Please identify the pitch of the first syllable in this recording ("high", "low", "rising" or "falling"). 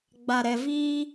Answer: low